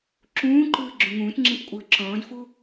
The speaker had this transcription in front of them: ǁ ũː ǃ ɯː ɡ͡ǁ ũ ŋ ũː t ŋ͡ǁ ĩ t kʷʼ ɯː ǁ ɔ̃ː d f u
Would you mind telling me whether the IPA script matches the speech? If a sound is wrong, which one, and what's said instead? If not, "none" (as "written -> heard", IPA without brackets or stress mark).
none